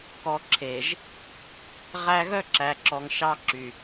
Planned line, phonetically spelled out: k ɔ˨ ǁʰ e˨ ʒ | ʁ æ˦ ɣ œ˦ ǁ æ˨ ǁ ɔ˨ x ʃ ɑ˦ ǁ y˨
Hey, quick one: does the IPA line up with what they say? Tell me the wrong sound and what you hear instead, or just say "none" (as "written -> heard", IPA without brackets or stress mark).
x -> ŋ